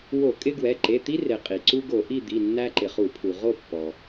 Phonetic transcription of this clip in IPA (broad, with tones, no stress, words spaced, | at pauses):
wo˧˩˧kʼɪ˦ɡwɛ˩˧˩ ǃe˩˧˩t̪i˦re˩ qʼi˩ ǀu˦ ɡo˧˩˧ʔi˥˨d̪i˩˧˩ nːæ˦ǃɪ˩χu˧˩˧pʰu˩ ʁo˥˨ pːɔ˩